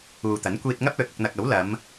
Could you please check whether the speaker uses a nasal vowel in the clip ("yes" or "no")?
no